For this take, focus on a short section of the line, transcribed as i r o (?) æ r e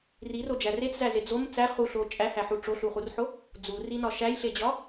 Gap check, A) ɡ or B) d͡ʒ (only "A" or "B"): B